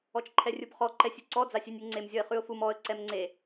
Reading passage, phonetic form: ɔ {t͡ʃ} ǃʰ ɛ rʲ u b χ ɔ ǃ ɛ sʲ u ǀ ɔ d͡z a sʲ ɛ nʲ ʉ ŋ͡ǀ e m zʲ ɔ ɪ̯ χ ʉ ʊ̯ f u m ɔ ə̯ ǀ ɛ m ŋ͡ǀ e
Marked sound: correct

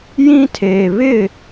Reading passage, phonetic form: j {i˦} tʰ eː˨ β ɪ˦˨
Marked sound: incorrect: ĩ˦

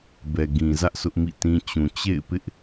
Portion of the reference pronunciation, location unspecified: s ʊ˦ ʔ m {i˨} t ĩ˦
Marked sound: incorrect: ḭ˦˨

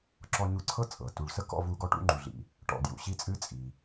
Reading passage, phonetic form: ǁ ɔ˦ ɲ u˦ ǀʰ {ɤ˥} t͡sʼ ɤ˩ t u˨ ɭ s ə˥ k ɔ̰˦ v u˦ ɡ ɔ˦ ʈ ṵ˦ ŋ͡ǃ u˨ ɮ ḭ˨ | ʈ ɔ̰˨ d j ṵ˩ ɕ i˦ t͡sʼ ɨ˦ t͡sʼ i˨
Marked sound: correct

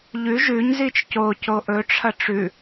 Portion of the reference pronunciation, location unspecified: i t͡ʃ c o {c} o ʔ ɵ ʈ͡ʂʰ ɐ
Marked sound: correct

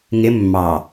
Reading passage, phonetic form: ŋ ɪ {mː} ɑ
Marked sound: correct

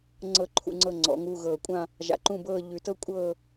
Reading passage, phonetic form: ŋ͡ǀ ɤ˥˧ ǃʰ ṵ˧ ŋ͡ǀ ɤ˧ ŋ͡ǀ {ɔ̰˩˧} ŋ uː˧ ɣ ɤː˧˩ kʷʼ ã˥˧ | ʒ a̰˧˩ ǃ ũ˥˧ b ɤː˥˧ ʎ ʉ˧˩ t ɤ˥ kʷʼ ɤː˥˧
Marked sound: correct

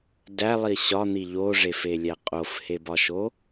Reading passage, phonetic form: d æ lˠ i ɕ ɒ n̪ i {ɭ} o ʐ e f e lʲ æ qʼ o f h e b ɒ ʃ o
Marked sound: incorrect: ʎ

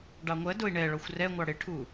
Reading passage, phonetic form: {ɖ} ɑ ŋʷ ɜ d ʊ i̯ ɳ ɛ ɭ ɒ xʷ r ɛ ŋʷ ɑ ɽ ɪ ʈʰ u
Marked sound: correct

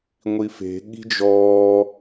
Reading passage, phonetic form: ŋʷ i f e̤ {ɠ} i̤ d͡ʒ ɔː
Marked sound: correct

